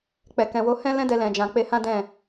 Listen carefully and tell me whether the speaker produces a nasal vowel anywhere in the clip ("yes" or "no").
yes